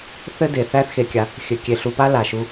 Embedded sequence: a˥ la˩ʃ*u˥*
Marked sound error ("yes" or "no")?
yes